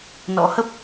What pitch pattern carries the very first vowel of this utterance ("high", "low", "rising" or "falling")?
rising